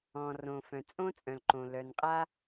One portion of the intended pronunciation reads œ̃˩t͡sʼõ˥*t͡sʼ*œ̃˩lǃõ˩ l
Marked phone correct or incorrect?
correct